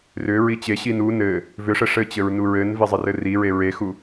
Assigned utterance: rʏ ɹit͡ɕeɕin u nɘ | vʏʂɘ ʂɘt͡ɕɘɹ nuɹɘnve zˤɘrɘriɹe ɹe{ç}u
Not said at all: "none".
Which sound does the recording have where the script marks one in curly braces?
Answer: x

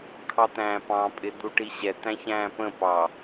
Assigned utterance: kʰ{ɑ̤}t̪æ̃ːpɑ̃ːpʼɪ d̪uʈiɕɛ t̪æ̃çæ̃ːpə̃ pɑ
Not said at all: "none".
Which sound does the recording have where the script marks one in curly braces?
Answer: ɑ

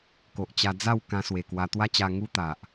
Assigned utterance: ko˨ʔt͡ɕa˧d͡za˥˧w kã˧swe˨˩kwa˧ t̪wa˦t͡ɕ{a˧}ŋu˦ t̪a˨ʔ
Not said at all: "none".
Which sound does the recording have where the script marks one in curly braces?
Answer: a˧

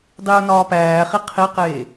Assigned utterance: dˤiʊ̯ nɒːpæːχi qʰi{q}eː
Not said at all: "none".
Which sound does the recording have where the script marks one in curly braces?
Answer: q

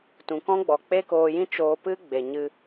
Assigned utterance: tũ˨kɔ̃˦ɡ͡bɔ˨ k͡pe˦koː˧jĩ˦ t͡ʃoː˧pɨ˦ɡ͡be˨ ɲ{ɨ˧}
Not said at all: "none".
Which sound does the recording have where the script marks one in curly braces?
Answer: ɨ˧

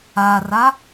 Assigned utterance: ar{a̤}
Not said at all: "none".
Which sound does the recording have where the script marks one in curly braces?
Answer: a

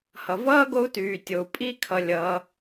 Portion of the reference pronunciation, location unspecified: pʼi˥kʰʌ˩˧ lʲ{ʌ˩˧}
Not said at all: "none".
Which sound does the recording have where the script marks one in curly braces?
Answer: ʌ˩˧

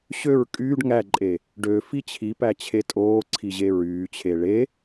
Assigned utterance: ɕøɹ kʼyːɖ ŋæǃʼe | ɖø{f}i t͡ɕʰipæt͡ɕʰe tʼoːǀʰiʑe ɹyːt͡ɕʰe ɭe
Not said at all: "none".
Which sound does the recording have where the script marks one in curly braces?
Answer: f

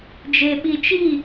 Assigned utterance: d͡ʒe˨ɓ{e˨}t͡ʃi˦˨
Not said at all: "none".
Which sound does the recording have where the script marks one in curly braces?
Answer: i˨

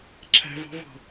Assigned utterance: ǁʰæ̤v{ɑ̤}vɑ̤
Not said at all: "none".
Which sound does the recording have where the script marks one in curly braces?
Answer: ɑ̤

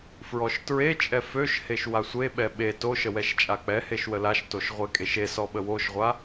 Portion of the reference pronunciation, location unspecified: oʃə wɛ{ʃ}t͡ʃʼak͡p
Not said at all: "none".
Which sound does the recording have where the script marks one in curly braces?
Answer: ʃ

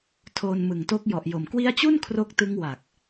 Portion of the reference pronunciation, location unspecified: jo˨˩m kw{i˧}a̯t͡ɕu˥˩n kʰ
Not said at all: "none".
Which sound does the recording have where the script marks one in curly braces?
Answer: i˦˥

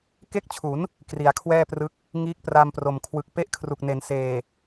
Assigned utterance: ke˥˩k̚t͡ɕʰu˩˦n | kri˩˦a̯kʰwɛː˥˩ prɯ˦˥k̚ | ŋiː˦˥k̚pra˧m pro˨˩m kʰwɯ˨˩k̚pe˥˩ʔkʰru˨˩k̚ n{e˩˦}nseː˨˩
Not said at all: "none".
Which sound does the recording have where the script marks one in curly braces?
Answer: e˩˦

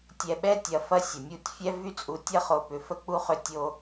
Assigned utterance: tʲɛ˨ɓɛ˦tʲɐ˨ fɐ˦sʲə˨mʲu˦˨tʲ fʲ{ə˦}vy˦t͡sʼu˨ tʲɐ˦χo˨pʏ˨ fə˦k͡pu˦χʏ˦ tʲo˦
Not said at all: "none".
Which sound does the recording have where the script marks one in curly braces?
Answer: ɛ˦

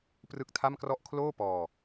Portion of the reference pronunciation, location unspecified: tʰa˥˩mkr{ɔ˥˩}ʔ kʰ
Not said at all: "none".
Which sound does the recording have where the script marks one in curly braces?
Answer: ɔ˥˩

